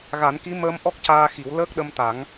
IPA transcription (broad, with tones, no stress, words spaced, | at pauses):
ɣa˨˩˦nki˧˥ məː˧mʔɔ˦˥k̚caː˧xi˨˩˦w ləː˦˥k̚ɗə˧mt̪a˨˩˦ŋ